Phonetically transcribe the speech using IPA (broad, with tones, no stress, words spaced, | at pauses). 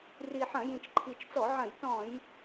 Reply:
ri˨˩ħɐ̃˧˩˧ jĩ˨˩t͡ʃǃʰi˨˩t͡ʃt͡sɔ˧˩˧ʕɐ̃˧˩˧j tɔ̃˧˩˧j